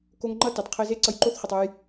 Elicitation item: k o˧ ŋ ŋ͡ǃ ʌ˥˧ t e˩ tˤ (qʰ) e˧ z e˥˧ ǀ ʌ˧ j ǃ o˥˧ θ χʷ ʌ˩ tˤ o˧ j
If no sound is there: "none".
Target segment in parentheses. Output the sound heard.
qʰ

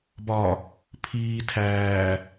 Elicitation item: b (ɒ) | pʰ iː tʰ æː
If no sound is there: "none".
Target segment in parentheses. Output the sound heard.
ɒ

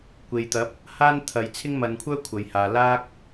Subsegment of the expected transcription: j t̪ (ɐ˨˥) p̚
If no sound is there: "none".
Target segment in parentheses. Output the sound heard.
ɐ˨˥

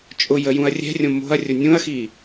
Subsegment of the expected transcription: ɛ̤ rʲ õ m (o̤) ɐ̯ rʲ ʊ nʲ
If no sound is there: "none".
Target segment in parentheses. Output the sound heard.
o̤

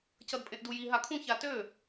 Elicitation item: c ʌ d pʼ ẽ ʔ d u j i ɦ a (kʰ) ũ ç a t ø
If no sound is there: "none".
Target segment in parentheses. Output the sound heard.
kʰ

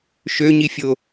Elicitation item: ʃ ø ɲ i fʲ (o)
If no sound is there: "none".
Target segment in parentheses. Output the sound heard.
o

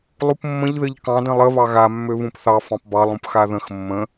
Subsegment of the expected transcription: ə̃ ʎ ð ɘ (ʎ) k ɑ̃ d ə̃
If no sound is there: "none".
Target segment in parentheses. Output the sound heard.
ʎ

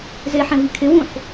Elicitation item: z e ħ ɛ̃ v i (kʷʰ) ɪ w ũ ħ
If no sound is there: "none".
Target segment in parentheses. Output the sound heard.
kʰ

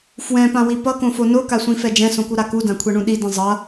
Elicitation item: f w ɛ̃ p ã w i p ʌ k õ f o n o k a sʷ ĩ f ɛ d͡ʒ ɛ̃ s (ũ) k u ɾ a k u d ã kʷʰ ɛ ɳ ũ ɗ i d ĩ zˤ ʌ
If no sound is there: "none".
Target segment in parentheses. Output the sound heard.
õ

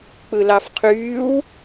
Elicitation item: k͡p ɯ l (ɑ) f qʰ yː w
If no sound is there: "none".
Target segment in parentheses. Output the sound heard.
ɑ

